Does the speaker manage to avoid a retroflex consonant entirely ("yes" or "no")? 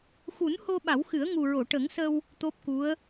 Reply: no